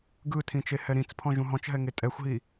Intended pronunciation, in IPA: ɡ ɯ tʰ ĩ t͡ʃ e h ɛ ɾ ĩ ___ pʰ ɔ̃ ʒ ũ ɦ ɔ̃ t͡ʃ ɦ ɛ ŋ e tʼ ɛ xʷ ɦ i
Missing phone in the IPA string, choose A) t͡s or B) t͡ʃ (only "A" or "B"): A